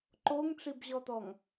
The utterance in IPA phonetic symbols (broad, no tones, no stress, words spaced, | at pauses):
ǃoŋʈ͡ʂibʑɔt̪ɔŋ